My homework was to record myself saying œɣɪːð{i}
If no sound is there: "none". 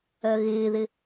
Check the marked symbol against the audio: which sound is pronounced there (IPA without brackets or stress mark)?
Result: ɪ